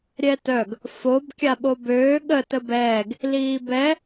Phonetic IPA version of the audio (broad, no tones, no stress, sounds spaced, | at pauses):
ɾʲ ɛ t œ ɡ | f o b kʲ a ɓ o b øː ɠ ə t ə b ɛː ɡ | l iː b ɛ